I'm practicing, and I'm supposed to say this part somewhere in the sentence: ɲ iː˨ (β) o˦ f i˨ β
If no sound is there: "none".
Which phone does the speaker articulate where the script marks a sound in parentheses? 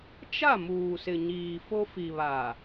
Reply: f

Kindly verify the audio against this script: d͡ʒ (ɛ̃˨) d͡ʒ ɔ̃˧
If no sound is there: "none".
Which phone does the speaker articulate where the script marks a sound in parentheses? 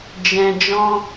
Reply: ɛ̃˨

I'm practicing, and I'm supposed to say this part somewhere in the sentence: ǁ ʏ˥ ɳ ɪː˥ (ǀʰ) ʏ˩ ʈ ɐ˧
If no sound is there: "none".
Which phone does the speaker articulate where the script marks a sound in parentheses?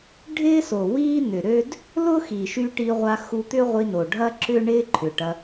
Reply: ǃʰ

